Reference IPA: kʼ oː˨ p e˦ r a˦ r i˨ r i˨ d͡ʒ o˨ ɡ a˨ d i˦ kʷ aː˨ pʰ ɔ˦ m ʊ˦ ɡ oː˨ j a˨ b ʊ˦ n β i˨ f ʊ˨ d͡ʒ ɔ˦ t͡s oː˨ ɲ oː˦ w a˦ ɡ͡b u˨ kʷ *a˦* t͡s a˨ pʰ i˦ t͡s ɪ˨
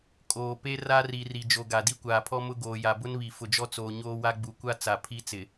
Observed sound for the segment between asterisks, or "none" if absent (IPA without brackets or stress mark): a˦